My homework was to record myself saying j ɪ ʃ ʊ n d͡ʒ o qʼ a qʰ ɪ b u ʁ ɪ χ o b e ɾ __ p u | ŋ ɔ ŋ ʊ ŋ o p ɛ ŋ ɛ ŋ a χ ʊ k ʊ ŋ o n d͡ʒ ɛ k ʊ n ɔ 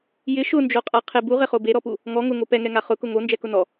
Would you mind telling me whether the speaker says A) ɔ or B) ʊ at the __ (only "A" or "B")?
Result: A